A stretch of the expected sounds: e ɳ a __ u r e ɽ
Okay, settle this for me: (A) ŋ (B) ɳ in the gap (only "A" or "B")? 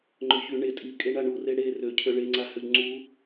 B